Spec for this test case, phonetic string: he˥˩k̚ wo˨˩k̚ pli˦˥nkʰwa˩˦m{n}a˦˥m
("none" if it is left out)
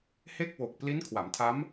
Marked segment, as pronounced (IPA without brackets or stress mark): tʰ